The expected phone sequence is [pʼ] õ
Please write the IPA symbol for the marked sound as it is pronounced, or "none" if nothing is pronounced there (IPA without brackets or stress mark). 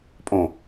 pʼ